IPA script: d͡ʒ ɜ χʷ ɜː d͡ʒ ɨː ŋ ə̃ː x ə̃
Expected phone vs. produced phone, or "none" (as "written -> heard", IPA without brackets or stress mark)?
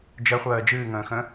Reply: none